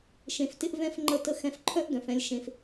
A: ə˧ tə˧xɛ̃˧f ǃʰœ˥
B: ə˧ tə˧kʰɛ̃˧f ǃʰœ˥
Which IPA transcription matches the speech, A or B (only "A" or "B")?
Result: A